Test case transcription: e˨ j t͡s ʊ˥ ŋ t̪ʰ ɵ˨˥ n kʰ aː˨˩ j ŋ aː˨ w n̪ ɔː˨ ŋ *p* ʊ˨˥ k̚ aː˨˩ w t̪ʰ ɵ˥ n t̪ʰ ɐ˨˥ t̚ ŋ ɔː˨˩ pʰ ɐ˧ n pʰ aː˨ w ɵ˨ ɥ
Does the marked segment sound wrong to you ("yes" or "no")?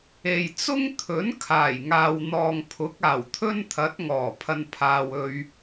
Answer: yes